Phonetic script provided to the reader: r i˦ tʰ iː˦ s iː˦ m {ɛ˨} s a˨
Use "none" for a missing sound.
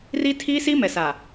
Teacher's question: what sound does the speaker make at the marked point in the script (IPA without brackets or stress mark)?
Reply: ɛ˨